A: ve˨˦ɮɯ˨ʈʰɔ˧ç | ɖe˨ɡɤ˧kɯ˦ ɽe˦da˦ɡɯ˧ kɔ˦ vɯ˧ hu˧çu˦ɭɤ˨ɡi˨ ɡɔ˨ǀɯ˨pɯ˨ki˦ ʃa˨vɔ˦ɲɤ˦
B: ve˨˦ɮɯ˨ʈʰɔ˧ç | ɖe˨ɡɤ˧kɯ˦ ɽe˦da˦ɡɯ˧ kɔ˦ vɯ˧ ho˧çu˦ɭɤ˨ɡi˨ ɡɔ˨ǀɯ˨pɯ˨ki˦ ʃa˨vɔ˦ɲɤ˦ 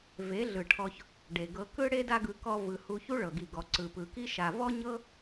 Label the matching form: A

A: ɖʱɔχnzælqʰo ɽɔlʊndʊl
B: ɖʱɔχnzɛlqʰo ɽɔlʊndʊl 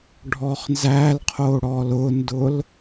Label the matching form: A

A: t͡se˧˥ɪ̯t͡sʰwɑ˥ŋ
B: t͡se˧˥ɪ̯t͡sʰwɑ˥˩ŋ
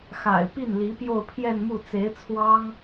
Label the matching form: A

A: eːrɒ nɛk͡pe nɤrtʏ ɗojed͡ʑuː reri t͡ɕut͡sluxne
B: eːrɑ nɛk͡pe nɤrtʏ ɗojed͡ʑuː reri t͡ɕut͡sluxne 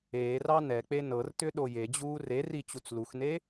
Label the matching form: B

